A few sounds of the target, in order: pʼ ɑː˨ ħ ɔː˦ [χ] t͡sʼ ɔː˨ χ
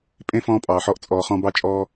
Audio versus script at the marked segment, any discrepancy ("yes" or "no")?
yes